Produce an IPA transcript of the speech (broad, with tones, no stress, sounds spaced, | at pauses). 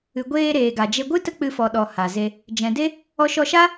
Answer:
ɨ˨ ɡʷ eː˧ ɾ eː˨ ɡ a˨ d͡ʒ e˧ ɡʷ ɨ˦ t ə˦ k͡p ɨ˧ f ɔ˨ ɗ ɔ˨ h a˨ z e˧ | d͡ʒ ɛ̃˨ d e˦ | ɔ˧ ʃ ɔ˧ ʃ a˦